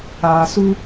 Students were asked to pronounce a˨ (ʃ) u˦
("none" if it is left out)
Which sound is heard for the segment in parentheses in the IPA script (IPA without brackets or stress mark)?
s